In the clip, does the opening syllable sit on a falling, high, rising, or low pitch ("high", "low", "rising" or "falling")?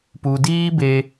low